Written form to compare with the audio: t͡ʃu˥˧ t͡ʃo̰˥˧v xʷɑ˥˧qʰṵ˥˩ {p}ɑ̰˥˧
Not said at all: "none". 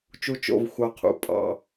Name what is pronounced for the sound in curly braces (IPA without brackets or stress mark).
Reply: pʼ